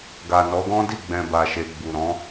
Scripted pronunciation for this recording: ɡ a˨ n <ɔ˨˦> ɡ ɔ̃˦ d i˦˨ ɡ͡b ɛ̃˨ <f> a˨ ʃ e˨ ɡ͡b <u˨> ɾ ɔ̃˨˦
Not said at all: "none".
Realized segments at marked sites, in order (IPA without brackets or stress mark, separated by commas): ɔ˨˦, b, u˨